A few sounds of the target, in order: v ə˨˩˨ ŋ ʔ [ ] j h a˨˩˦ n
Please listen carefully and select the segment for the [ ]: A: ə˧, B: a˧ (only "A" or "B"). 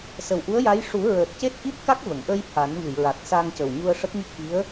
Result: A